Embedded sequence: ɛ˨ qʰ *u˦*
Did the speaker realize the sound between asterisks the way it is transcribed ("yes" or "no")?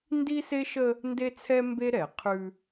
no